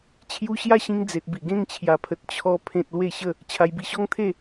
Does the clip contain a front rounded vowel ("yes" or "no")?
no